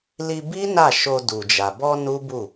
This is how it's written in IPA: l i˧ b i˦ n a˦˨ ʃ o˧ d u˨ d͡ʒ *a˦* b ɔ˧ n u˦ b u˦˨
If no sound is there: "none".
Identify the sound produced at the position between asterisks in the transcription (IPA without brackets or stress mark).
a˨